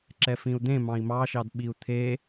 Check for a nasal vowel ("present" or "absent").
present